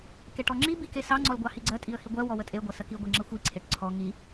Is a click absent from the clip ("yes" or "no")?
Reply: no